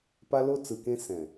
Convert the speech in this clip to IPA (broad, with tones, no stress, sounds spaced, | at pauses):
p a˦ l o˦ t͡s ɯ˨ k ẽ˦ s ɛ̃˨